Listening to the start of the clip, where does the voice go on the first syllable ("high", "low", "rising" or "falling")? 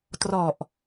low